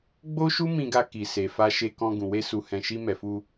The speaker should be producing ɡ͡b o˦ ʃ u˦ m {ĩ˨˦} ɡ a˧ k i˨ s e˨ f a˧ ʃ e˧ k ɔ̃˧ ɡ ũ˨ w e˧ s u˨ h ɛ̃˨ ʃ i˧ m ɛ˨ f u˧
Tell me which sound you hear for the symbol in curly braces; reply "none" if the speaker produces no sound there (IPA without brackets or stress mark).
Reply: ĩ˧